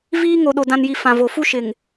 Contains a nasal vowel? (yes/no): yes